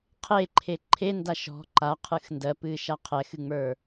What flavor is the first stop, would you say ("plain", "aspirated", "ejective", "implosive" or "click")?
aspirated